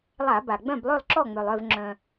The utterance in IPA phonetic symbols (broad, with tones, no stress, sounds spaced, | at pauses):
lˠ a˧˩˧ b a˩ ɡ͡b œ̃˥˩ b lˠ ø˥˩ lˠ ǁ ɔ˥˩ ŋ͡m ø˩ lˠ œ˥˩ v ŋ͡ǁ œ̃˩